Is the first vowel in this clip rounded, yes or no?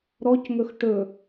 yes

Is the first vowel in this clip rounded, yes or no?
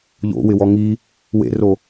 yes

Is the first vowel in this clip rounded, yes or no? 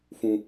yes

